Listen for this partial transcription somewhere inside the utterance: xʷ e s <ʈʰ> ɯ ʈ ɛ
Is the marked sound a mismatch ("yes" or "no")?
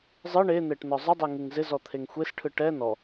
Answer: no